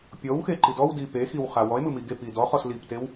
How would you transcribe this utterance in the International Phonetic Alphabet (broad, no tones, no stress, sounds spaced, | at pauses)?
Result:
pʲ ɔ w x e ǃ i d ɔ w d i p e x i w χ a w ɔ e̯ m ɯ m i ɡ e p i d ɔ χ ɔ s l i p t e w